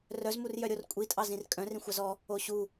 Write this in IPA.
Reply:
r œ z m u r j œ ɾʲ o r kʷʼ i tʼ ɑ z ĩ r kʼ œ̃ r ĩ xʷ ɑ z ɔ | o ɕ u

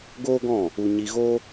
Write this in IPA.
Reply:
ɡ oː˦ ɡ ɔ̃˦˨ | u˧ ɲ i˧ ɣ o˦

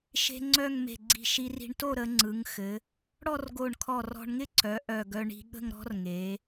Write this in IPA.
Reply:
ʃ e̤˥ ŋ͡ǀ œ˥˧ ŋ m e̤˧˩ ɡ͡ǀ i̤˧˩ ʃ i˧ r i̤˧ ɳ t o˥˧ ɾ ə˩˧ ŋ͡ǀ ɯ˩˧ ŋ x ɘ˩˧ | ɽ ɔ˥˧ r ɡ o˧˩ ɳ kʰ ɔ˧˩ r ɔ̤˧ ɳ ŋ ɪ˥˧ ǀ œ˩˧ ʔ œ˧˩ ɡ œ˧ ɳ i̤˧ ɠ ə̤˥˧ ŋ ɾ ɔ̤˥ r ŋ e˩˧

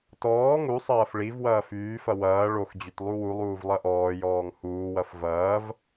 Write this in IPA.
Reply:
t ɔː ŋ u sˤ ɐː f ɭ i v w ɐː f yː f ɐ w ɐː ɭ o x d͡ʑ y t lˠ u w u lˠ uː v lˠ ɐ ʔ ɔː j ɔː ŋ h uː w ɐ f v ɐː v

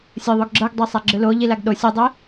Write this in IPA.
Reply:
sʲ ɤ ðˤ o ɡ ɡ͡ǁ ɤ ɡ dˤ ɤ sˤ a ɡ͡ǁ ɯ l o ʎ i l a ɡ ɗ o sʲ ɯ dˤ i

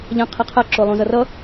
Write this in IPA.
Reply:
ʎ ã qʰ ɛ qʰ a ǁ o lˠ ũ z ʌ r ʌ

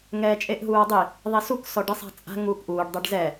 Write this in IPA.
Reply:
ŋ ɛː t͡ʃʼ e ʔ ɦ uː ɐ̯ dˤ i | ðˤ i s u k s ɔ ɖ i sˤ a̤ t͡sʼ a̤ ŋ uː k ʔ uː ɖ dˤ ɛ ɖ z ɛ

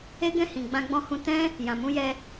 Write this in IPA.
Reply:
e˦ ɡ ɛ̃˦˨ h ĩ˨ ɡ͡b ã˧ ɡ͡b ɔ̃˧ h ũ˧ t ɛ̃˦ | j ã˨ m ũ˧ j ɛ˧

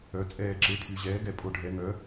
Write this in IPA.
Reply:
œ˩˧ t͡sʼ ɛː˧˩ ǁ e˩˥ tʰ y˩˧ ʑ ɛː˩˥ ɡ ɛ˧˩ pʼ o˧˩ ɖʱ ɛ˩˧ ŋ œ˩˥

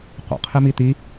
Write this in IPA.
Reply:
qʷ ə̰ qʰ i m i t̪ i

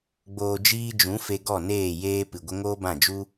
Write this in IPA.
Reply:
ɡ͡b oː˨ d͡ʒ iː˧ d͡ʒ ũ˨˦ f e˧ ɡ ɔ˦˨ n eː˦˨ j eː˦ p ɨ˨ ɡʷ ə˦ ŋ oː˦ b ã˦˨ d͡ʒ u˦

